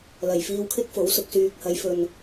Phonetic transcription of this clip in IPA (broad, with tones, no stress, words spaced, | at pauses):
lɐ˨˩jfiː˧wkʰɪ˥k̚fo˨˥w sʊ˨k̚syː˨k̚hɐ˨˧jfɵ˨n